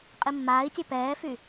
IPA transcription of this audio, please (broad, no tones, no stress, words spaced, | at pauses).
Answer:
qʼimːaːi̯tʲœ pɛːfy